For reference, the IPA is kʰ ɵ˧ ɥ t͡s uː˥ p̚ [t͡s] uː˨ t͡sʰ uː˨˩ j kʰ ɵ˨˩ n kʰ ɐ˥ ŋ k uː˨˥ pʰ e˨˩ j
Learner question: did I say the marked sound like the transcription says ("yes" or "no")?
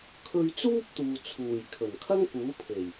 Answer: no